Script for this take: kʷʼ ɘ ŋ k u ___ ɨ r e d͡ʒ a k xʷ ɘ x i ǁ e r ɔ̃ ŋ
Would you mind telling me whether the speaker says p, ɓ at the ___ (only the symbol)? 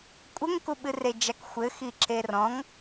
ɓ